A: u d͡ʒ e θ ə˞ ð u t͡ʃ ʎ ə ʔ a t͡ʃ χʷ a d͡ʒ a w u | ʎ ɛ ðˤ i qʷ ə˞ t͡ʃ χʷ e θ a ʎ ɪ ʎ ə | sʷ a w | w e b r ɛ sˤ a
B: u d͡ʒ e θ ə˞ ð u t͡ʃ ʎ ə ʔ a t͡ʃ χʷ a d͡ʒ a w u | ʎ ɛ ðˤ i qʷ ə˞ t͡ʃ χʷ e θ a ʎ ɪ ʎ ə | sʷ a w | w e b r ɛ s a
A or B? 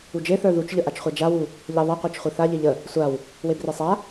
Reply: A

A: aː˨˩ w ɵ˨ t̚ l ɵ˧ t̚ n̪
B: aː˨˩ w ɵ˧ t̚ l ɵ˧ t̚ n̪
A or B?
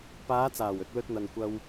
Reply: A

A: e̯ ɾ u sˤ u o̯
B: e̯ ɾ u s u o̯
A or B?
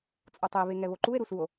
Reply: B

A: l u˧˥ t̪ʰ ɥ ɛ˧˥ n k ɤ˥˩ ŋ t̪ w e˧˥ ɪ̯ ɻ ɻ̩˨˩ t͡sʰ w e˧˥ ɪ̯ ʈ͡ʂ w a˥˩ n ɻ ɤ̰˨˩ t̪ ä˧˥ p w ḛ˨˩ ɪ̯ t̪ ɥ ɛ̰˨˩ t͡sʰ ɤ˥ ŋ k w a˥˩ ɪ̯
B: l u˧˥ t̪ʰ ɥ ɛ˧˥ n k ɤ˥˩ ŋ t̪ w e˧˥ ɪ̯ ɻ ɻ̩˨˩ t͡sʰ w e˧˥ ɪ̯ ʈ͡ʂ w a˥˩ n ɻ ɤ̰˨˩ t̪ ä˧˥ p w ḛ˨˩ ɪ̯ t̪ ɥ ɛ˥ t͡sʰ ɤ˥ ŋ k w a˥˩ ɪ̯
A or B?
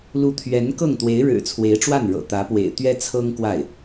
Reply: B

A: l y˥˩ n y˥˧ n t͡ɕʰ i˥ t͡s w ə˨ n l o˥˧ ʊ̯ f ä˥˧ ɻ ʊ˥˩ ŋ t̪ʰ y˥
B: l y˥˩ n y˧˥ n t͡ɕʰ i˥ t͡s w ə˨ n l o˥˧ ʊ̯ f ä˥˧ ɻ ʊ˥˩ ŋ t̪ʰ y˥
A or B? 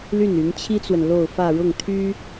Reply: B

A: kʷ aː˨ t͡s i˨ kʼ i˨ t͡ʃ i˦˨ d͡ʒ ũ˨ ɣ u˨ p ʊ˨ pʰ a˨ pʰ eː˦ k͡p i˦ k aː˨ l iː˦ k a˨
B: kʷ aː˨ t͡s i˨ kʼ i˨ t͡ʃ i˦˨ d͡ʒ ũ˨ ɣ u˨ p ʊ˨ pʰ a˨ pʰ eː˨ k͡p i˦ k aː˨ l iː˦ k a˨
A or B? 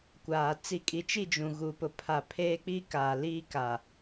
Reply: A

